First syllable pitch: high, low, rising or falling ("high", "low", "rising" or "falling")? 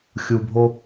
low